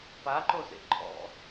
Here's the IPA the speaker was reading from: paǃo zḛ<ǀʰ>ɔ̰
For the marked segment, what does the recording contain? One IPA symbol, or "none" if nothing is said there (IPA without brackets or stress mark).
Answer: ǃʰ